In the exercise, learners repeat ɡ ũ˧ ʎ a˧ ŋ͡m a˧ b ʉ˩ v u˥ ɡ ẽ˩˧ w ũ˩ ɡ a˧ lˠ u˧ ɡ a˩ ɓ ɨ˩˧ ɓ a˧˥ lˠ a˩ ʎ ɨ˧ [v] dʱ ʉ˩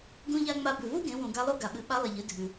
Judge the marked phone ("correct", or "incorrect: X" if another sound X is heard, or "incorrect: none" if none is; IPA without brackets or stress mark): incorrect: none